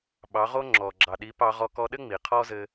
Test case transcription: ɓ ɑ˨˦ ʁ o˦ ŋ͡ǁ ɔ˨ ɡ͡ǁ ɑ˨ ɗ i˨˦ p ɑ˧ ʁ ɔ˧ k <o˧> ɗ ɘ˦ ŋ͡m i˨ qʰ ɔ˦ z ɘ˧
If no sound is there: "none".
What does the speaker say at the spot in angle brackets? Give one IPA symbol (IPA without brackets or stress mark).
ɔ˧